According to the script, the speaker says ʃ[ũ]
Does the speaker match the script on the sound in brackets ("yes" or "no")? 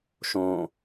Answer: no